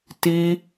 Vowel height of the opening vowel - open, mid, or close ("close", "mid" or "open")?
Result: close